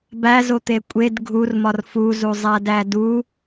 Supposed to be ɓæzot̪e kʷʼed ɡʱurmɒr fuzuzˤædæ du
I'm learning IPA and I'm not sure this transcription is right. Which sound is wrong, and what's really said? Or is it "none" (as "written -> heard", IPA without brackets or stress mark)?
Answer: ɓ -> b